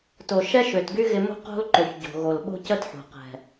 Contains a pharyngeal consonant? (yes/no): yes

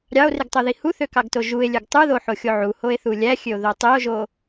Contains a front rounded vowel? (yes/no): yes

